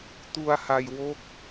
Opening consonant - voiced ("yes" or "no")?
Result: no